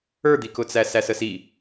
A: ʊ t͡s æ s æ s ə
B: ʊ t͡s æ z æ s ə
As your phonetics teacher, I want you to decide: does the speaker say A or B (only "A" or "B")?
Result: A